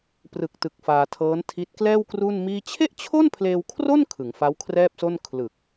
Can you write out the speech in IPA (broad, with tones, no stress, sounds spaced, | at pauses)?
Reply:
p r ɯ˨˩ k̚ t ɯ˨˩ k̚ f aː˧ tʰ ɤː˦˥ n tʰ i˦˥ t̚ k l ɛː˥˩ w k r u˥˩ n m iː˥˩ t͡ɕʰ e˥˩ ʔ t͡ɕʰ o˥˩ n pʰ l eː˧ w kʰ r o˥˩ n kʰ ɯ˩˦ ŋ f a˦˥ w kʰ r ɛː˥˩ p̚ s o˥˩ n kʰ l ɯ˨˩ k̚